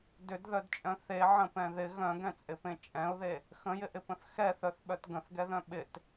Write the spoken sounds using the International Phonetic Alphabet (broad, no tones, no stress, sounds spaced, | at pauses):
d ʏ d ð œ d t͡ʃʼ œ̃ θ e ʕ ə̃ p ɛ̃ ð ɪ ɣ œ̃ ɡ ɛ̃ t͡sʼ ɪ p ẽ t͡ʃʼ ɛ̃ ʊ̯ ð e | x ə̃ j ɪ ʔ ɪ p ə̃ θ x ɛ θ œ θ ɓ œ t ɡ ə̃ θ ɡ ɛ ð œ̃ ɓ ɪ t